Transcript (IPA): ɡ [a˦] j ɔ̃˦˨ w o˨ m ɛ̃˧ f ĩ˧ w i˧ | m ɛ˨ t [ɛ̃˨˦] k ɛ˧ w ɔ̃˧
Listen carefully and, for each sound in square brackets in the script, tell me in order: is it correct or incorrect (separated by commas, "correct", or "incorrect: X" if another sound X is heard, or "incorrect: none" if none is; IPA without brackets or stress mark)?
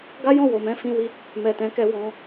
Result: correct, correct